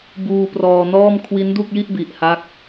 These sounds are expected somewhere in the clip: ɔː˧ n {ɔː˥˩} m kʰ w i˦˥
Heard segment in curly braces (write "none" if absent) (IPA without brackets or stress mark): ɔː˥˩